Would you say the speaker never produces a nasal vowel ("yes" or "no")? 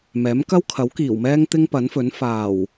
yes